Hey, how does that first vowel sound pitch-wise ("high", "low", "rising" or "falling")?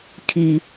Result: high